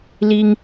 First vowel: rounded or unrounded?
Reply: unrounded